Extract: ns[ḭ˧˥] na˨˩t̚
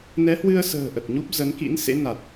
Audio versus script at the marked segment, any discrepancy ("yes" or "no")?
yes